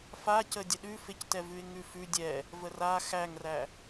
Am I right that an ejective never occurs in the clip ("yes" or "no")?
yes